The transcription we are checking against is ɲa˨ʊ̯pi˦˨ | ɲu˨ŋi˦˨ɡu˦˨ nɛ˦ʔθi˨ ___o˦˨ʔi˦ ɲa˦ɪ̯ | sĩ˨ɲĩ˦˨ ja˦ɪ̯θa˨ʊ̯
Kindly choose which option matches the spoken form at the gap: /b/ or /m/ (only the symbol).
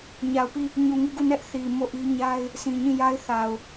m